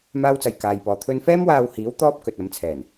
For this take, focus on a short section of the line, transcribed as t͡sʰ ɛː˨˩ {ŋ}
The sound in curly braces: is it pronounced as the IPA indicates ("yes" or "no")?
no